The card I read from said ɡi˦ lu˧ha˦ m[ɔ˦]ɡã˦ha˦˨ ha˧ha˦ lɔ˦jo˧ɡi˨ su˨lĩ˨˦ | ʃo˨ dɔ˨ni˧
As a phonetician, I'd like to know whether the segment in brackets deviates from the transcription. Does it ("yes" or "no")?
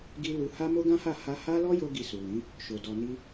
yes